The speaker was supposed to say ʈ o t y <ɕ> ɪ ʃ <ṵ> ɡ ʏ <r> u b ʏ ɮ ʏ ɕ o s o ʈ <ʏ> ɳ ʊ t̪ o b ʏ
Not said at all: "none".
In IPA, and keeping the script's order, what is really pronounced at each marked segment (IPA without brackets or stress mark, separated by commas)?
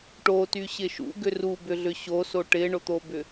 ɕ, ṵ, r, ɪ